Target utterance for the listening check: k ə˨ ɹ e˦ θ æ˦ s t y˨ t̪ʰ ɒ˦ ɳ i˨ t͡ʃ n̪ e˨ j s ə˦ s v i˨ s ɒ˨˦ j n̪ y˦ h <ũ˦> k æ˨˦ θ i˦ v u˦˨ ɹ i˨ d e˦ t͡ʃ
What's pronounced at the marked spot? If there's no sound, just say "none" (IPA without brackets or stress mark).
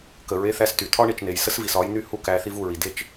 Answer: u˦